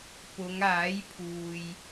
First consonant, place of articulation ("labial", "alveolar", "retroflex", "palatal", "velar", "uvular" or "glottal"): labial